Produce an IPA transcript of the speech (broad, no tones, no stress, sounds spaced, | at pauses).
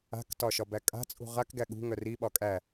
a̤ k t ɒ ʃ ɒ b æ kʼ a̤ t͡sʼ ṳ ʁ a k ɡ æ ɠ ṳ ŋ œ r i ɓ ɒ kʼ æ